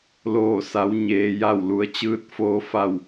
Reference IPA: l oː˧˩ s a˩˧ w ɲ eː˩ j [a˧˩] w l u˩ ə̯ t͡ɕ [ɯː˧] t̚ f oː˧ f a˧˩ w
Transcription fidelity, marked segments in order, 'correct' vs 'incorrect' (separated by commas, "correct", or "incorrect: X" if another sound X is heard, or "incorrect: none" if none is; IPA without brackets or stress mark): correct, correct